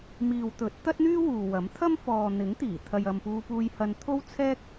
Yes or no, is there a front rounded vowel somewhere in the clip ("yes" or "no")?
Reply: yes